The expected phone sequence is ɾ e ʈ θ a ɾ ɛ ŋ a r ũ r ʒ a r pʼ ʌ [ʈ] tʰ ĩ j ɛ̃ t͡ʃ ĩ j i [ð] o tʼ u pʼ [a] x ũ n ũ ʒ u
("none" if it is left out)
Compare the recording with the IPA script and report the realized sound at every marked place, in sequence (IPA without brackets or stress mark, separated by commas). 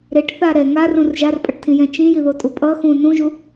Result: ʈ, ð, ʌ